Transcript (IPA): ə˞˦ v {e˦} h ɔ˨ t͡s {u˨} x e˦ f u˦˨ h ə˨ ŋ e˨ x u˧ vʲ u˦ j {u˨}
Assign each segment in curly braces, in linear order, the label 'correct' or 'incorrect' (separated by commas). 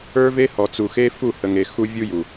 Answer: correct, correct, correct